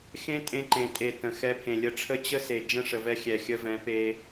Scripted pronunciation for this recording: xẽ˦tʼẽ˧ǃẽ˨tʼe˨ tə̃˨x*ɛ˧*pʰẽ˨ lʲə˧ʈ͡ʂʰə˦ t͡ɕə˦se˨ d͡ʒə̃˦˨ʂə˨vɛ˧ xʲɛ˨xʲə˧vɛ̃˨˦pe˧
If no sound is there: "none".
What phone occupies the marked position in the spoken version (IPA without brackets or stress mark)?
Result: ɛ˧